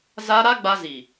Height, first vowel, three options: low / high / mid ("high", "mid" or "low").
low